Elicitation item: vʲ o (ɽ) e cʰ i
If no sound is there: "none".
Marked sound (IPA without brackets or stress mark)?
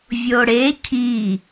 ɽ